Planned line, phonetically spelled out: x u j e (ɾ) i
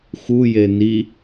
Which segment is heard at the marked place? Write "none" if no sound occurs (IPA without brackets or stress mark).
n